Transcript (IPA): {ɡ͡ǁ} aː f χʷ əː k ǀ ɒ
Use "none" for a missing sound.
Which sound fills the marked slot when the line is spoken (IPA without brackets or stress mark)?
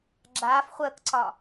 ɡ͡ǁ